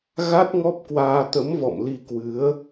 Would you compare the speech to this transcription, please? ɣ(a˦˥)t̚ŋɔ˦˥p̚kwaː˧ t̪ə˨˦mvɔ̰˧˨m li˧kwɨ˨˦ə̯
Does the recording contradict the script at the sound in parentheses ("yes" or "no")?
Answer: no